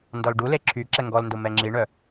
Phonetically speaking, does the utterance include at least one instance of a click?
yes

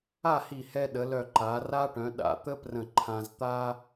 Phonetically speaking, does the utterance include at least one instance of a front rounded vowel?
yes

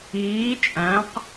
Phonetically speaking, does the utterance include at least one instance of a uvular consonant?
yes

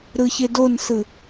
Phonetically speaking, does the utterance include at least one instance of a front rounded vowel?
no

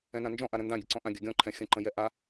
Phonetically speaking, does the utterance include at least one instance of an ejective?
no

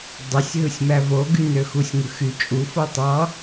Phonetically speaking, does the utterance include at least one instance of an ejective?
yes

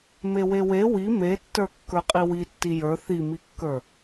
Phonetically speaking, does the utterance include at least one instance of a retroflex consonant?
no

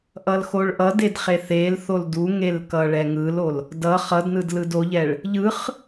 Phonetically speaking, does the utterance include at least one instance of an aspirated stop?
no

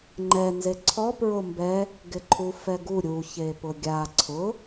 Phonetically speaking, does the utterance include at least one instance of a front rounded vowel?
no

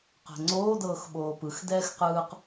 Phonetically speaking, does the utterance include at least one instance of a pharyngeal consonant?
no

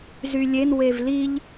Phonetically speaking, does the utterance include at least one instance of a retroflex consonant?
no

